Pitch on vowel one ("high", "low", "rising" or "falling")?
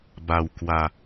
low